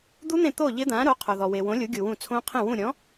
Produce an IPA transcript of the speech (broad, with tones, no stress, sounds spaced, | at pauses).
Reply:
d̪ u˦˥ n̪ ẽ˦˨ t̪ o˦˨ ʎ ɪ˦˥ d̪ ã˨˥ ɾ o˨˥ qʰ o˨ ð ɔ˨ w e˨ w õ˨˥ lʲ u˨˥ ɡʲ u˨ w ũ˦˨ t͡sʰ õ˦˥ qʰ ẽ˦˨ w ũ˦˨ ɾʲ ɔ̃˨˥